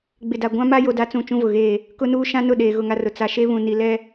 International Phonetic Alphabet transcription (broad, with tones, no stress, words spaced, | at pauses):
ɡ͡bɪ˨da˨ ɡʷã˦ma˦ jo˦da˦ t͡sũ˦˨t͡ʃũ˦vʊ˨ɣeː˦˨ | kʊ˦nuː˦ ʃã˦nʊ˦˨ ɗeː˨ɣʊ˦˨ŋa˦rʊ˨ t͡sa˨ʃe˦βũ˨ ni˨lɛ˦